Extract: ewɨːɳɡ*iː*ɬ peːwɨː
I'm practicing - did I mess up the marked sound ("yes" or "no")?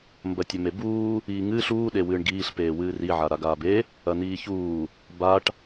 no